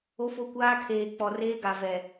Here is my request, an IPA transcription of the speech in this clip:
o˦ f o˦ kʷ aː˦ kʰ eː˨ k͡p ɔ˨ r eː˦ ɡ a˨ v ɛ˨

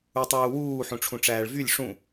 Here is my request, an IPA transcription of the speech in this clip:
u tˤ uː w uː ħ ũ ʈ͡ʂʰ ũ ʈ͡ʂ æː ɭ v y lʲ ʂ ũ

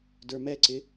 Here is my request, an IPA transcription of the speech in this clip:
d ə˞ m ɛ ǀ ɪ

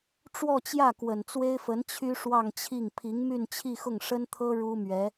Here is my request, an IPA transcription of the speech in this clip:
ʈ͡ʂ w ɔ˥˧ t͡ɕ j ä˥˩ k w ə˨˩ n t͡s w e˥ ɪ̯ f ə˧˥ n t͡ɕʰ y˥ ʂ w ɑ˥˧ ŋ t͡ɕʰ i˥˩ ŋ pʰ i˧˥ ŋ m y˥˧ n t͡ɕʰ i˥˧ x ʊ˥˩ ŋ ʂ ə˥ n t̪ʰ ɤ˥ ɻ u˥ m ɥ ɛ˧˥

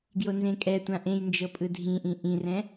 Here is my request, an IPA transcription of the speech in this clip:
ɡ j o n z ẽ kʼ ɛ tʷ ã ʔ ẽ j n d͡ʒ ɤ pʼ ɯ dʱ ĩ ʔ ĩ ʔ ĩ r ɛ̃

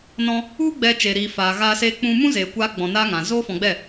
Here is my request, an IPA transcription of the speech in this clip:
n ɔ̃˧ | u˦ ɡ͡b ɛ˧ t͡ʃ e˧ ɾ iː˧ f aː˨ ɣ aː˧ s eː˧ k͡p ũ˧ m ũ˦ z eː˧ kʷ aː˦ ɡ͡b ɔ̃˧ n aː˦ ŋ ã˨ z oː˦ f ɔ̃˧ ɡ͡b ɛ˦˨

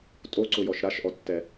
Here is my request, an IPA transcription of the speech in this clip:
tʼ o ǀ ʊ j ɔ ʃ ɾ a ʃ ʔ ɔ tː ɛ

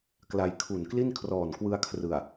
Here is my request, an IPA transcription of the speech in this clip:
k l a˧ j kʰ u˨˩ n k l i˥˩ n kʰ r ɔː˨˩ n k w ɯ˧ a̯ kʰ r ɯ˨˩ a̯

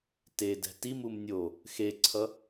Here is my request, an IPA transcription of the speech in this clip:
t e d ɛ̤ t i m u m nʲ o | x e ǀʰ ʌ

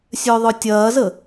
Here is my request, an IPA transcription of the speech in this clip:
sʲ œ ðˤ œ tʲ ɐː z ə

